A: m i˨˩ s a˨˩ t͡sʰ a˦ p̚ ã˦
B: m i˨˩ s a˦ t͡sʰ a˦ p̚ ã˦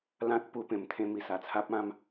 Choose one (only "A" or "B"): A